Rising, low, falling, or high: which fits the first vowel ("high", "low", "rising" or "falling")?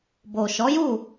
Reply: low